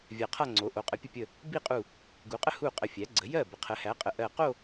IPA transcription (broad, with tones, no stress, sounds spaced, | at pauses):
vʲ a˧˩ qʰ a˥˧ ŋ͡ǀ o˩˥ ʔ o˩˥ qʼ ə˩˥ pʲ ə˧˩ pʲ ə˧˩ | b i˥˩ qʼ u˧˩ | ɡ u˩˥ qʼ ə˥˧ h u˥˩ qʼ ə˧˩ fʲ æ˩˥ ɡ͡ǀ ə˩˥ j ɜ˥˩ b ə˩˥ qʰ ə˩˥ h æ˩˥ qʼ ə˩˥ ʔ ɜ˧˩ q o˥˧